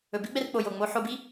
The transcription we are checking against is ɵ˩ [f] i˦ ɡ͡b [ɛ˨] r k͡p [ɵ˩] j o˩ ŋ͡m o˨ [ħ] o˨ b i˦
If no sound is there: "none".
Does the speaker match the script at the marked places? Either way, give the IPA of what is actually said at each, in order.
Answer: b, ɛ˨, o˩, ħ

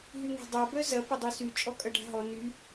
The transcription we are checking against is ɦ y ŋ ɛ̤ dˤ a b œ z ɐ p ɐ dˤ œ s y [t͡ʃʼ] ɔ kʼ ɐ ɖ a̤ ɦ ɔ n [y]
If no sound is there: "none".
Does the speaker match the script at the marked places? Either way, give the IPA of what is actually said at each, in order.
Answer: t͡ʃʼ, y

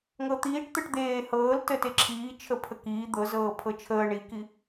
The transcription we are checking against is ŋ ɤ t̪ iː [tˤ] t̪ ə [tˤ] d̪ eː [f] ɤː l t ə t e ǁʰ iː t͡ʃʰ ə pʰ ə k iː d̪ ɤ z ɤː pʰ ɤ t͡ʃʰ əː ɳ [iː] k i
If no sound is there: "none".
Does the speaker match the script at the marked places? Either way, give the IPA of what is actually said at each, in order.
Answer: ʈ, ʈ, h, i

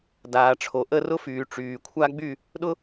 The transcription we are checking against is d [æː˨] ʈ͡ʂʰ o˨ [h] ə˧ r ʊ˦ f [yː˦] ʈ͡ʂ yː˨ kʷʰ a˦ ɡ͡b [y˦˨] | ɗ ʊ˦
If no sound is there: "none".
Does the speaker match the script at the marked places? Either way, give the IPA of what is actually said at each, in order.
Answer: aː˨, ʔ, yː˨, y˦˨

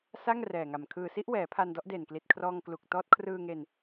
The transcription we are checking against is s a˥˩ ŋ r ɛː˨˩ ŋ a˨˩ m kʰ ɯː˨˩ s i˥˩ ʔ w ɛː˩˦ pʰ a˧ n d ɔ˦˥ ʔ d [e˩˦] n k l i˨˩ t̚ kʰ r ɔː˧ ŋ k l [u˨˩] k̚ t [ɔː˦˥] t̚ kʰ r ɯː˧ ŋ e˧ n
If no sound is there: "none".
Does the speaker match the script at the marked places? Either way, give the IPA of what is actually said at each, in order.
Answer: e˨˩, u˨˩, ɔː˦˥

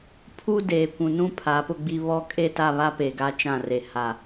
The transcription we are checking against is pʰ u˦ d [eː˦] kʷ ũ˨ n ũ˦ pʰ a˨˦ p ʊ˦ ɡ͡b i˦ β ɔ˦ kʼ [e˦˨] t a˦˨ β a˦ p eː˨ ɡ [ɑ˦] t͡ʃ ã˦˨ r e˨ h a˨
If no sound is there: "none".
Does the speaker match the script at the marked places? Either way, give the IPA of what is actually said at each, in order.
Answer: eː˨, e˦˨, a˦

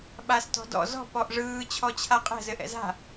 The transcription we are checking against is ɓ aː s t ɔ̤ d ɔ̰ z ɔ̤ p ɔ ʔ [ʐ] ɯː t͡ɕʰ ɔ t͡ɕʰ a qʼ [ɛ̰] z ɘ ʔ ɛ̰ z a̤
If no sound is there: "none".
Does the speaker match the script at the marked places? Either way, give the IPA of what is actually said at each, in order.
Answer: ʐ, ɛ̤

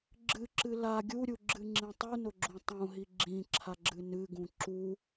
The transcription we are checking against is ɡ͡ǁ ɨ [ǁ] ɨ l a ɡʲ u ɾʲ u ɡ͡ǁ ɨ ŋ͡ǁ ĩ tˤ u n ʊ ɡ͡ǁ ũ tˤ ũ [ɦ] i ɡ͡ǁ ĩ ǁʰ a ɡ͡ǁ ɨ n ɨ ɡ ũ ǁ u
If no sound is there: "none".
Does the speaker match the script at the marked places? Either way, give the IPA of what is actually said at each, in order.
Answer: ǁ, ɦ

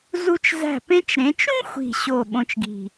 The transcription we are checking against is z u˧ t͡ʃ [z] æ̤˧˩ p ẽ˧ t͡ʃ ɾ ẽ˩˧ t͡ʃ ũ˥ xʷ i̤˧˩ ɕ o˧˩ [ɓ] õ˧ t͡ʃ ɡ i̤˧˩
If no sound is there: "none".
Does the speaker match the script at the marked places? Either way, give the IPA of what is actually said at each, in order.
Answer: z, ɓ

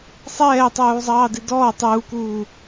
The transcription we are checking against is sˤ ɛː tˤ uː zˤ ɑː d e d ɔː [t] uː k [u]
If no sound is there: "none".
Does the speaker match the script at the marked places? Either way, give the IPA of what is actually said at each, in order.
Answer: tˤ, uː

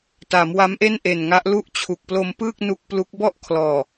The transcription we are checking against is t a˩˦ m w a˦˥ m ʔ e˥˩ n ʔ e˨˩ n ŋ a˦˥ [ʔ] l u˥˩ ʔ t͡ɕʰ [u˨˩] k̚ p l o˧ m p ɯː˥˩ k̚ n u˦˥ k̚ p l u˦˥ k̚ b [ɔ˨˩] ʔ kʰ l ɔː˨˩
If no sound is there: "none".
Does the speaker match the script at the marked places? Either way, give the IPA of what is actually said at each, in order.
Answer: ʔ, u˨˩, ɔ˥˩

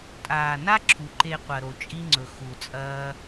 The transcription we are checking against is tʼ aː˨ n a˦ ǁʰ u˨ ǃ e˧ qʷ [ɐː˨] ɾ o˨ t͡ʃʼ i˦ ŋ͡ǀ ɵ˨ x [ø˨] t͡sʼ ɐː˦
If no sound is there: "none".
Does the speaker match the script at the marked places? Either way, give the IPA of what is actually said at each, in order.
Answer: ɐ˨, u˨

